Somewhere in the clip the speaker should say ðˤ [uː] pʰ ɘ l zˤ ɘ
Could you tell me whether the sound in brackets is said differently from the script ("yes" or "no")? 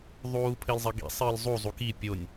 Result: no